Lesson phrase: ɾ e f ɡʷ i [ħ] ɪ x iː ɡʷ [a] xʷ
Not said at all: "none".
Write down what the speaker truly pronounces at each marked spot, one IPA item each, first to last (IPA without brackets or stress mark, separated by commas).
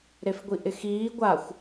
ʔ, a